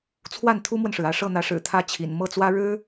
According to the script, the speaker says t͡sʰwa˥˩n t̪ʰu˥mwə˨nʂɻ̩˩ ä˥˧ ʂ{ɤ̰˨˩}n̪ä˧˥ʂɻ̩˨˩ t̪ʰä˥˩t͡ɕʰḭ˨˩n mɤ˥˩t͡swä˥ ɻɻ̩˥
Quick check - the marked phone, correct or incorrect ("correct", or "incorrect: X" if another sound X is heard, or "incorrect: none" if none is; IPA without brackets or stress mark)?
incorrect: ɤ˥˩